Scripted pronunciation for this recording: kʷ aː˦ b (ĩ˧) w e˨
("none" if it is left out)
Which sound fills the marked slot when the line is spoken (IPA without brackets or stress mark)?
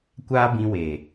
ĩ˧